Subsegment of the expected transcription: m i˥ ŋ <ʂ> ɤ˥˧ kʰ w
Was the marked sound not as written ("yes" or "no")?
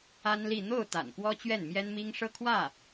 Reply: no